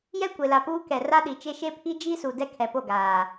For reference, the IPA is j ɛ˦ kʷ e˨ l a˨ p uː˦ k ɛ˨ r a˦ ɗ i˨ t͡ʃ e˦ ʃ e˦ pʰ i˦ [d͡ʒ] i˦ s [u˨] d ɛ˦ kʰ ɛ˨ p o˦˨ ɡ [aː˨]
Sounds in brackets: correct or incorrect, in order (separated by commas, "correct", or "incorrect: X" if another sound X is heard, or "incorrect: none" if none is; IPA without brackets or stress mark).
correct, correct, correct